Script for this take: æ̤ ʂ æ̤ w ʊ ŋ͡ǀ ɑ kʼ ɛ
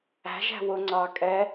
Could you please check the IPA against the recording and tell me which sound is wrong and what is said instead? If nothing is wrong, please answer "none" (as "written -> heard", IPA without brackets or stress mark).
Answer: ʂ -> ʒ